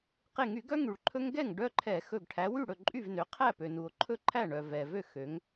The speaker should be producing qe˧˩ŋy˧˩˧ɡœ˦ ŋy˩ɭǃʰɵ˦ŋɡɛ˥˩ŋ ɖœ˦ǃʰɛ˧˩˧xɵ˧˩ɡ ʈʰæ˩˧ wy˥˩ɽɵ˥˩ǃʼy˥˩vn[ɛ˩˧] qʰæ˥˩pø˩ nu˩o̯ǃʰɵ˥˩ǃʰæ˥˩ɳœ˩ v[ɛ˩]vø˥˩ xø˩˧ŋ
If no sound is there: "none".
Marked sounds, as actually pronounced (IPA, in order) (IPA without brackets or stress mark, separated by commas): ø˩˧, ɛ˩